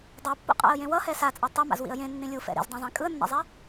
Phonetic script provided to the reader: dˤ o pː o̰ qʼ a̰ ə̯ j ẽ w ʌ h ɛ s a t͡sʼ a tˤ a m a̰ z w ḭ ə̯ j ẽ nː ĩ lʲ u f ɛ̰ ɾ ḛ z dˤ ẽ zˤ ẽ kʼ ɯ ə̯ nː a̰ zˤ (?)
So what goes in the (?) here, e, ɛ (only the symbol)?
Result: ɛ